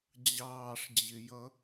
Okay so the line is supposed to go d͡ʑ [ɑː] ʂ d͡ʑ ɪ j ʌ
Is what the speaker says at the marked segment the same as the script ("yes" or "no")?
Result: yes